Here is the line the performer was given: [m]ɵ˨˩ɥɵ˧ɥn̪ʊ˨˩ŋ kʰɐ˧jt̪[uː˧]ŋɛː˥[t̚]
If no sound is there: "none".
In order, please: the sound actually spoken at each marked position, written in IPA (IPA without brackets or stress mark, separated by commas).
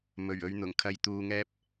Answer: m, uː˧, p̚